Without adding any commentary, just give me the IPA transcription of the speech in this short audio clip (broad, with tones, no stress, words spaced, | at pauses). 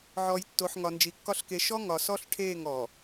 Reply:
ʕɔ˨jtːo˨ħ ŋɒ˨nd͡ʒi˨kːɒ˦ɬke˨˦ ʃɔ˦ ŋɒ˨sɔ˦ɬ ʈʰeː˦˨ŋ ɔ˨